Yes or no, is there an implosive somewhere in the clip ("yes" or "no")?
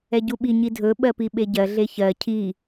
yes